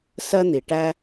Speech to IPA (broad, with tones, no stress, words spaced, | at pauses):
sɜ˥n̪i˨ ʈæ˥